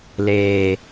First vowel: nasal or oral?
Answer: oral